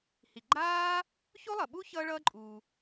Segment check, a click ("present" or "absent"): present